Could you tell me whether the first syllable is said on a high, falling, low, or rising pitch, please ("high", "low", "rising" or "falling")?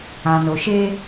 low